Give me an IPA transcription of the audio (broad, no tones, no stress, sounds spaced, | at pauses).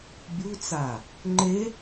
bʲ u t͡s a | ŋ͡ǃ e